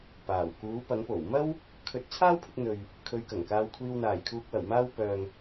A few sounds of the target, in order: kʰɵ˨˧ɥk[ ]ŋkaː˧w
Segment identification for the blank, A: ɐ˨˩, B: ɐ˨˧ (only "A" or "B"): A